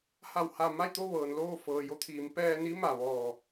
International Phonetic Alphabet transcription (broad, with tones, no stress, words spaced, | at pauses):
ha˧˩wha˧˩ma˥˨jt̪o˥˨ ʋɤː˩nloː˥˨fɤː˩ jo˧˥t̪ʰiː˩˧m pɛː˧ni˧˥ma˩ ʋɔː˧˩